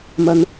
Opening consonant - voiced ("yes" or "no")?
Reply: yes